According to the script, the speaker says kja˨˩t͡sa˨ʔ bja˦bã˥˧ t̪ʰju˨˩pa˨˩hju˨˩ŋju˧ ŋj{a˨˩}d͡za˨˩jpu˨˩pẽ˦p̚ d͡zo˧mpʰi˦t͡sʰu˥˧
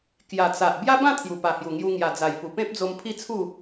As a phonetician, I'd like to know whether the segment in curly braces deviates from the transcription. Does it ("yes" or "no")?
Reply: no